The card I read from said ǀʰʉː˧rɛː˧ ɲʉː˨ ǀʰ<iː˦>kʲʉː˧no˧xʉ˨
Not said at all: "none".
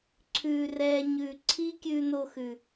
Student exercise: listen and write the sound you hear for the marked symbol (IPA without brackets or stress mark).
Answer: iː˦